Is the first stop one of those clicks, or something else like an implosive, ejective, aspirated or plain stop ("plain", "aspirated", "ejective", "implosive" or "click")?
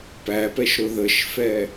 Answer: plain